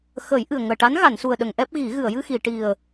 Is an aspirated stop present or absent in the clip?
absent